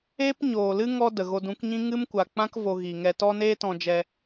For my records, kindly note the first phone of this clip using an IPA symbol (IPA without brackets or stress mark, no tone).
eː